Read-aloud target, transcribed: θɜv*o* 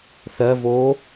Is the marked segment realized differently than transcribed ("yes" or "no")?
yes